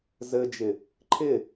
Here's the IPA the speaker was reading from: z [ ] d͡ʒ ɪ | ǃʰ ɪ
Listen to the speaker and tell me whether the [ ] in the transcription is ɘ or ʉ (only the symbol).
ɘ